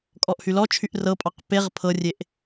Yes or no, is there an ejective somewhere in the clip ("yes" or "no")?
yes